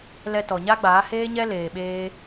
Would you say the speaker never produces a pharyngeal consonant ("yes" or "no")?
yes